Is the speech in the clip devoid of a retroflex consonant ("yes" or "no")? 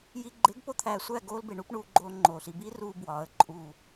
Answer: no